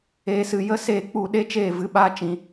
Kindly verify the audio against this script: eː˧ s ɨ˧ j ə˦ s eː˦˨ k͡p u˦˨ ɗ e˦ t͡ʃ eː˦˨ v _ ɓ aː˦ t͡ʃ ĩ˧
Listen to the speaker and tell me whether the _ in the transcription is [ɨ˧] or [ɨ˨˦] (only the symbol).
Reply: ɨ˨˦